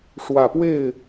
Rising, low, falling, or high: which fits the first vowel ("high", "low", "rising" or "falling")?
low